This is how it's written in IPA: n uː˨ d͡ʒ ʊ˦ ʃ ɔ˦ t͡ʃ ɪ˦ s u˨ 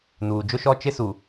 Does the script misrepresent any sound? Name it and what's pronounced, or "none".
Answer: none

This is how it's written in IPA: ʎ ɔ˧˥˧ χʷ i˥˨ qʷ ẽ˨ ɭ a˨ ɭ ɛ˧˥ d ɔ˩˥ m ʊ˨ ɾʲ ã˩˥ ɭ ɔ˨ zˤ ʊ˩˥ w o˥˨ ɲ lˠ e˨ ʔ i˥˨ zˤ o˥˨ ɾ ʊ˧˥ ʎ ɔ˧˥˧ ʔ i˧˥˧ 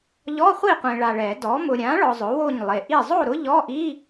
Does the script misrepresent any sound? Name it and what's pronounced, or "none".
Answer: ɛ˧˥ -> ɛ˨˩˦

